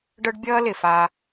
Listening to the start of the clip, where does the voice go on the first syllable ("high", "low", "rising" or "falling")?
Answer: high